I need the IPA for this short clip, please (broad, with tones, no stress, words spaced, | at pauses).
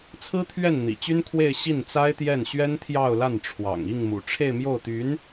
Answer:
t͡sʰɹ̩˥t̪ʰɥɛ˥˩n n̪ḭ˨˩t͡ɕy˥nkʰwe˥˧ɪ̯ ɕi˥˩nt͡sa˥ɪ̯t̪jɛ˥˩n ɕɥɛ˥nt̪ʰjɑ˥˧ʊ̯la˥˩n ʈ͡ʂʰwɑ̰˨˩ŋ i˥˩ŋmṵ˨˩ ʈ͡ʂʰe˥˧ɪ̯mjo˥˩ʊ̯t̪y˧˥n